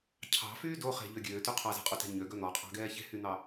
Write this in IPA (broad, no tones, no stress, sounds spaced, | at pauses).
cʰ ɑ̤ f yː d o χ e̤ ʎ ø ɡʲ øː t y qʰ ɑ z ɛ̤ qʼ u t ɛ̤ ɲ ø ɡ œ n̪ ɔ qʼ ɑ̤ ɡ ɛː ç e̤ h y n̪ ɑ